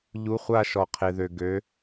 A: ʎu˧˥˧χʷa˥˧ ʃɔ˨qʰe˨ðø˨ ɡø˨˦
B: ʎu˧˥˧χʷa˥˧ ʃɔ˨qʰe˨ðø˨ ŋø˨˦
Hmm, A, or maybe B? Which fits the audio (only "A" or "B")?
A